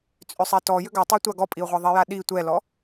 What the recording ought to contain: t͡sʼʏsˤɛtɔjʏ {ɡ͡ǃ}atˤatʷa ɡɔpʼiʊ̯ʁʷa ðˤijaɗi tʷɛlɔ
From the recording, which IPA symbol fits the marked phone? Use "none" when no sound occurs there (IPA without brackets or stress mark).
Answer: ɡ